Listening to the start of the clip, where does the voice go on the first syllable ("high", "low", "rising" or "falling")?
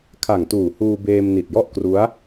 low